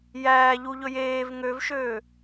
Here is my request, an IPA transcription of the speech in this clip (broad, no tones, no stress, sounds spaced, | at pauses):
j æː ʎ u ʎ ɵ j eː v ŋ ø v ʃ øː